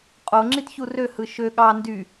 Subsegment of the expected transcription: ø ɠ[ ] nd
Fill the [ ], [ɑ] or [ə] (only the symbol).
ɑ